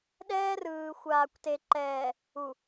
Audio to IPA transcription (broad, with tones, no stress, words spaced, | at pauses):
ɗɛː˦rɯː˨xʷaː˨kʷ te˨ǃɛː˨ | u˨